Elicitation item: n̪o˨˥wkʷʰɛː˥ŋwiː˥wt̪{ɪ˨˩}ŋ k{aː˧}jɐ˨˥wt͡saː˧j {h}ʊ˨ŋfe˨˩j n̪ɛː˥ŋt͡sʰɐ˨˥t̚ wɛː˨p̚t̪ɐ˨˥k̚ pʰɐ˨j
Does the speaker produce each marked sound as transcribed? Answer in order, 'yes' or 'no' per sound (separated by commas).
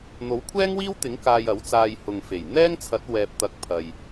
no, yes, yes